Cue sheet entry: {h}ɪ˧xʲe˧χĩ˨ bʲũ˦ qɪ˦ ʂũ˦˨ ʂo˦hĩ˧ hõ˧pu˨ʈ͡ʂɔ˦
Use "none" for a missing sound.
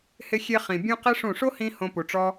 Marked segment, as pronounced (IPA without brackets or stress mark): h